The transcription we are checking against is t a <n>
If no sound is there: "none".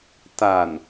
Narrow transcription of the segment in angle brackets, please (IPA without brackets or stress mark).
n